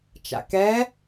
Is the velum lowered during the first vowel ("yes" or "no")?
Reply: no